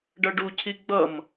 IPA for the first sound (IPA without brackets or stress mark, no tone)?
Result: ɖ